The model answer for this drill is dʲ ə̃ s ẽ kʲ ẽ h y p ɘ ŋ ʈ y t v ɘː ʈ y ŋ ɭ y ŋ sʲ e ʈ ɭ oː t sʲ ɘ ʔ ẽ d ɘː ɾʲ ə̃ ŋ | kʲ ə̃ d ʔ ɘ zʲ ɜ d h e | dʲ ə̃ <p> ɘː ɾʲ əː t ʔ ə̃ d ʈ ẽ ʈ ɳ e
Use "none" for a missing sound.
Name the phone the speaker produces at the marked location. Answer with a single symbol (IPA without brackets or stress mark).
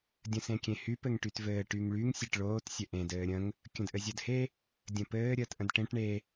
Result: p